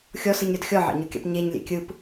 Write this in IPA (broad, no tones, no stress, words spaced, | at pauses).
xʲɔsɯɲɾʲɔd xʲɔʕɑ̰ɲokʲɑ̰p ɲeɲlʲḛ kʲɯp